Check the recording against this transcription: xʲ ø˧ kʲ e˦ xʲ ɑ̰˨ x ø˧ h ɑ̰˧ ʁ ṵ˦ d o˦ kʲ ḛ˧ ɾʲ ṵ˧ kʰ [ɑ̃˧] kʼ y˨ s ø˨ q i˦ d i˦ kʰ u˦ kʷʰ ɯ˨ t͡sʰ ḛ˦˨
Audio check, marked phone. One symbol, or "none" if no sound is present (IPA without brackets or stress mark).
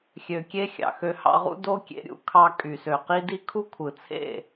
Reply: ɑ˧